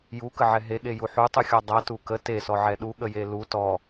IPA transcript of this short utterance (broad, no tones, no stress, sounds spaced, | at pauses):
j u k ə ʕ ɛ ɦ e ɠ e j u ħ u tˤ u xʲ ɔ dˤ a t u k ə t e s ɔ ʕ ɛ ɗ u ɠ ə j e l u t ɔ